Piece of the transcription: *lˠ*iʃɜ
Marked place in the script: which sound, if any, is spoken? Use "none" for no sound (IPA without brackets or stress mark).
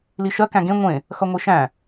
l